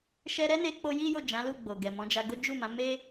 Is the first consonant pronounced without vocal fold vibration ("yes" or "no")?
yes